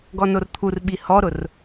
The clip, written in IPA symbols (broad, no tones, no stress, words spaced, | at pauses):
ɡɔnort̪ʰurɓi hɔɾʊr